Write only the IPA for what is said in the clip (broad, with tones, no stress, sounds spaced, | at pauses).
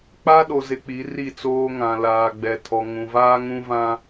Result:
k͡p a˦ ɗ o˨ z ɪ˨ k͡p i˨˦ r i˦˨ t͡s oː˦ ŋ ã˨ l aː˨ ɡ͡b ɛ˨ tʰ ɔ˨ ŋ ũ˨ v aː˦ ŋ ũ˦ v ã˦